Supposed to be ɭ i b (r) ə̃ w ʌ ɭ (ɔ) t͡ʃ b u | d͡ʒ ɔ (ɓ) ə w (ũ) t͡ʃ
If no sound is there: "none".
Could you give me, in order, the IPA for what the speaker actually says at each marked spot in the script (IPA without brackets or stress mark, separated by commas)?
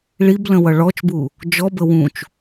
l, ɔ, b, ũ